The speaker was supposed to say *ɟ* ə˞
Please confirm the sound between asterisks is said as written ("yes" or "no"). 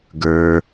no